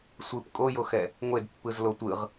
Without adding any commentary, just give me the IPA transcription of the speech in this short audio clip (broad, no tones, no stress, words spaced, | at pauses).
sʷɯp kʼojoxɛ | ŋʷedpːɯzlo tʷɯʁ